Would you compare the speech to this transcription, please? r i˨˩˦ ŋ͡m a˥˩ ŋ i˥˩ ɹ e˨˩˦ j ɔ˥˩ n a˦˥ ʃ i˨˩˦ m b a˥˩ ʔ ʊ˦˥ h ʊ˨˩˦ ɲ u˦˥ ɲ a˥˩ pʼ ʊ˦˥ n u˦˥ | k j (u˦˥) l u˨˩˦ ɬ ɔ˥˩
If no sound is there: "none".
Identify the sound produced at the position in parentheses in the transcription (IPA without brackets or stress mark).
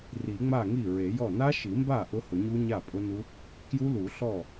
u˦˥